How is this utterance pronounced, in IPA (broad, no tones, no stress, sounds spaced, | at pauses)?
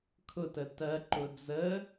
kʰ ʊ t ə t ɜ ǃ ʊ d͡z ə